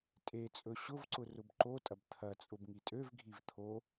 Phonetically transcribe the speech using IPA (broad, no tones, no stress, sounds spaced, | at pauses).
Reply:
tʼ e t͡sʼ ɵ ɕ ʊ v ǀ ʊ r ʊ b ǃ o tʼ ɐ b t̪ʰ ɐ t͡sʼ ʊ b ŋ i tʼ ø v ɡʱ i v t̪ʰ o